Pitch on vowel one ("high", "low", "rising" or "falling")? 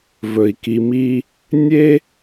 low